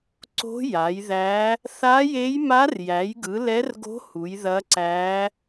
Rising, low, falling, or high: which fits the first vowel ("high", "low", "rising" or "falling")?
rising